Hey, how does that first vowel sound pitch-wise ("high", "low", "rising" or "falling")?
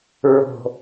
low